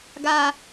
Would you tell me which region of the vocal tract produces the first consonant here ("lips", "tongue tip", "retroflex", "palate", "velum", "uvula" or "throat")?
velum